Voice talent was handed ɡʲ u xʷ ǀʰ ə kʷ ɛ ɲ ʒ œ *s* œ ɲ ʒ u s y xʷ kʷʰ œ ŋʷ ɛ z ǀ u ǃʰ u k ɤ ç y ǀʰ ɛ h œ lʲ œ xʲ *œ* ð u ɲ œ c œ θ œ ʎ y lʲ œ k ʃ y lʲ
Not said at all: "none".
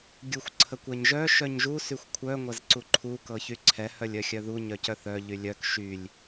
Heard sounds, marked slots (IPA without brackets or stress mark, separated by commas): ʃ, œ